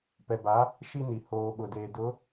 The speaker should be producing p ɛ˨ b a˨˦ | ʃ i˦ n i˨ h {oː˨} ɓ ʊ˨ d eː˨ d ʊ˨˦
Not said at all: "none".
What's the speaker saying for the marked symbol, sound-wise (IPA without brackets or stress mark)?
oː˨